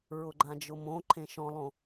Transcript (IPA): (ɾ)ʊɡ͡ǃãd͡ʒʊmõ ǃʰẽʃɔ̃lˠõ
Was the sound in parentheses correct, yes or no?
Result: no